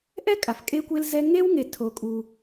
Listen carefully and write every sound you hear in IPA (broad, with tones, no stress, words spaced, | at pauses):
ʔɛ˥kʼa˩f kʼe˦kʷe˦lzɛ˦ ŋe˥wŋe˨ tʰo˨kʼu˨